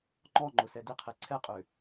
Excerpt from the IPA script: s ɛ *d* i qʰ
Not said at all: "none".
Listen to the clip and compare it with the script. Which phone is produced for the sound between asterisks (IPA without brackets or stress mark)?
d